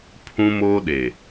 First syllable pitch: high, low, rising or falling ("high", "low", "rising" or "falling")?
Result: high